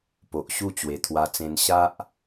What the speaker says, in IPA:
p o˨ ʔ ɕ u˥˧ t͡ɕ w e˨˩ t̪ʰ w a˧ t͡s ẽ˧ n ɕ a˦ ʔ

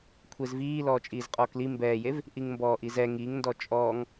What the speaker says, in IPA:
kʷʰ e z v iː l ɔː t͡ʃʼ iː z qʼ ɔː k l i m b ɛː j e v | ʔ i ŋ m b ɔː ʔ i z ɛ ŋ i ŋ n d ɔ t͡ʃʼ ɔː ŋ

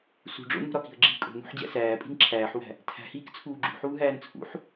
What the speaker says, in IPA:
s ṳ ɖ͡ʐ o̰ n ṳ ɾ ɒ k i̤ ə̯ ɡ͡ǁ iː kʼ o̤ n ṳ ħ d͡ʑ æ̰ s æː pʼ i̤ n ǁʰ æː ħ w æ̤ | tʰ æ̤ h iː k t͡sʰ uː ɡ͡ǁ ṳ ħ uː ɦ æː n t͡sʰ ṵ ħ

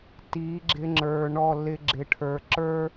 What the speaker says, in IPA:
t i˨˦ ɡ͡ǁ ɪ˧ ŋ͡ǁ ə˞˨ ɳ ɔ˦˨ l ɪ˧ ɡ͡ǁ ɪ˨ ʈʰ ə˞˨ ǁ ə˞˦

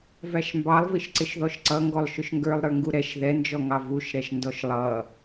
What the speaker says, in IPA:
v æ ʃ m b ɑ lˠ v i ʃ ǀ ɪ ʃ ð ɔ ʃ ǀ ʌ ŋ ɡ ɔ lˠ ʃ ʊ ʃ ŋ ɡ ə˞ lˠ ɾ ə˞ ŋ ɡ u ɾ ɛ ʃ ð ɛ n d͡ʒ ɔ ŋ ɑ v u ʃ ɾ ɛ ʃ n d ɔ ʃ lˠ ʌ

